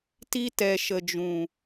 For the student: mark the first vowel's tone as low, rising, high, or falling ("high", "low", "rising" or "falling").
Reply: high